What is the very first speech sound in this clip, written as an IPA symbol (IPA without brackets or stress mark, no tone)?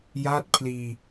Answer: j